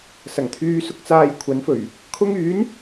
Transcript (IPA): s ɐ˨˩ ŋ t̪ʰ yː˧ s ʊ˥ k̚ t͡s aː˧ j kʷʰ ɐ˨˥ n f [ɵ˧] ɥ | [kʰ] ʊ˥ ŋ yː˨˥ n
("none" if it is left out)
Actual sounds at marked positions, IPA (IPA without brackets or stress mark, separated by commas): ɵ˨˩, kʰ